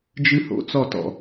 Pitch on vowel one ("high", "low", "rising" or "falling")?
high